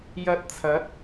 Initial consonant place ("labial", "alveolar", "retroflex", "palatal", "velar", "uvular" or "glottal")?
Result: palatal